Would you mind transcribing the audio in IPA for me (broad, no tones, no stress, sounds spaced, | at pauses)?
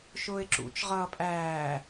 ʃ ʊː ɪ̯ ǁ ṵ t͡ʃ ʁ ʌː pʼ æː